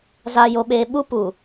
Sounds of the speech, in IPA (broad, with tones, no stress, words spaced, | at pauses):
za˨jo˨ɓeː˨ ɓu˦pu˨